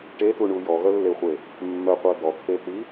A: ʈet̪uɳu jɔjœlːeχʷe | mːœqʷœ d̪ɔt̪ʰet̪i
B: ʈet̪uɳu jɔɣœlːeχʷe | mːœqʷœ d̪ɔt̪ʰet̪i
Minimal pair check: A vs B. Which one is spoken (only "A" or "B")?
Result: B